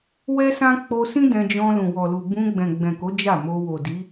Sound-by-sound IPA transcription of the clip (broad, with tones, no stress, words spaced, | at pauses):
wɛ˦sã˦ k͡po˧sĩ˦ dɛ̃˧d͡ʒɔ̃˧ lũ˨wɔ˨lu˨ bũ˧ɡ͡bɛ̃˨ɡ͡bɛ̃˨ko˨˦ d͡ʒa˦˨mo˧ wo˨di˨˦